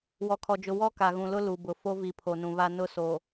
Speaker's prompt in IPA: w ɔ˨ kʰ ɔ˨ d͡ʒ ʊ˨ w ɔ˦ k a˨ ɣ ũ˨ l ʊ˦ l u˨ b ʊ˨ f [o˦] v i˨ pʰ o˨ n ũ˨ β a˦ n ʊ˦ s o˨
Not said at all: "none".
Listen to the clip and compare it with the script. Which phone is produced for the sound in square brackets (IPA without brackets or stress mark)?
o˦